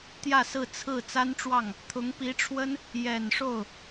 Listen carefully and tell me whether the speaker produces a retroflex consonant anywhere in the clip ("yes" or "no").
yes